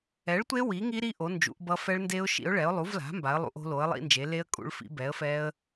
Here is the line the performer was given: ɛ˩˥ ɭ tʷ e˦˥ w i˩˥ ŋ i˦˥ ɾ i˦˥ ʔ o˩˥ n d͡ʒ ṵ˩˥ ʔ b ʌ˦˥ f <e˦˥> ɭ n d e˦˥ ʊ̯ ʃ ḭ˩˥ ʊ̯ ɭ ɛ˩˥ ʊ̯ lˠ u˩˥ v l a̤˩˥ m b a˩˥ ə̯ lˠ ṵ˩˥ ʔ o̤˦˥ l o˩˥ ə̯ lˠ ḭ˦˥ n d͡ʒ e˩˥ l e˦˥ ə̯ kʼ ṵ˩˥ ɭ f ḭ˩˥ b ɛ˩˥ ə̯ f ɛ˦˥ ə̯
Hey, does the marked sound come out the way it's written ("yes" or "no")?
no